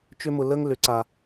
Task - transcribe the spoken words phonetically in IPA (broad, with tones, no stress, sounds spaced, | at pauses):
t͡ʃ ʏ˦ m ʊ˧ l ə˦ ŋ l ʏ˨˦ ǀ a˧